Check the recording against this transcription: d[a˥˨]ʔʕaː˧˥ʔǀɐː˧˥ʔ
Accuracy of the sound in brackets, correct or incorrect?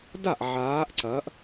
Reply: correct